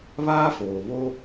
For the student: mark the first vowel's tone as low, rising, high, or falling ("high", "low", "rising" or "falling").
high